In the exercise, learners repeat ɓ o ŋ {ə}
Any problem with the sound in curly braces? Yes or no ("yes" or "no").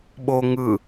yes